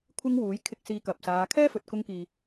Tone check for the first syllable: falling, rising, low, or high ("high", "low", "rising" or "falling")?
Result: high